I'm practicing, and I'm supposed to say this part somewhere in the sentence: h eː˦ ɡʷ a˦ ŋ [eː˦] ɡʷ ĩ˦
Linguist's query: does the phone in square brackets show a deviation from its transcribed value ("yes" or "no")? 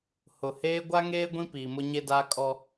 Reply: no